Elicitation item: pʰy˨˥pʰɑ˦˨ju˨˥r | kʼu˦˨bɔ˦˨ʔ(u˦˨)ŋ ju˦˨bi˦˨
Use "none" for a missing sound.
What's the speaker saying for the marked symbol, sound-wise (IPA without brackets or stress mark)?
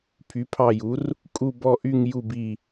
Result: y˦˨